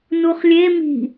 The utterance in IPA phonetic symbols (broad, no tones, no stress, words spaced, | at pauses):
nuχlʲe mi̤